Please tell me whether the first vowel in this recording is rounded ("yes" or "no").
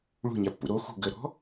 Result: yes